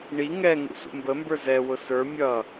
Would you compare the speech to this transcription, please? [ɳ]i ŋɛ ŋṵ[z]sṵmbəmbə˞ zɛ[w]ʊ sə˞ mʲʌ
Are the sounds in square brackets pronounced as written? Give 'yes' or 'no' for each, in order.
yes, no, yes

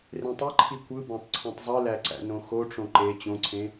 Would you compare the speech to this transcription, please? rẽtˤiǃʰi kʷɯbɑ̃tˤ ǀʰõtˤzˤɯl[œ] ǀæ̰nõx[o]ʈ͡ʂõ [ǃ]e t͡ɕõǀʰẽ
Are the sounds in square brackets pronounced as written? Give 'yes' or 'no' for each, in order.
no, yes, yes

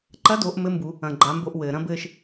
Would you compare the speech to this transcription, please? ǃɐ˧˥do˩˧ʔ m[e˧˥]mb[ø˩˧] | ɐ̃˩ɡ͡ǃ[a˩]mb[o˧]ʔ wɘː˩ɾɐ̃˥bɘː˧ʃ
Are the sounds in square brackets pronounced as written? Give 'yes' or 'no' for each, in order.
no, no, no, yes

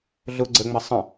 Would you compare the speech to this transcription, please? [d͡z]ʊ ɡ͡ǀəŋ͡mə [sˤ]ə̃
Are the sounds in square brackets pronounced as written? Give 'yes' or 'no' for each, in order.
no, yes

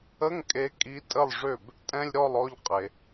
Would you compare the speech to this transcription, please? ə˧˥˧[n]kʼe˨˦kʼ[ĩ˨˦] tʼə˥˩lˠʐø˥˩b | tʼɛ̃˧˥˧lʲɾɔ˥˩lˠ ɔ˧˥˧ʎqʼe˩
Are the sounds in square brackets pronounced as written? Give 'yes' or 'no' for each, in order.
no, no

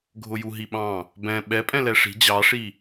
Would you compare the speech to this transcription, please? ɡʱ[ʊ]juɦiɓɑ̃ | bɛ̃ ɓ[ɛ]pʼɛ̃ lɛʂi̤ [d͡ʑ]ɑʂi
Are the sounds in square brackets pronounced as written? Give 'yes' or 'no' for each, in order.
yes, yes, yes

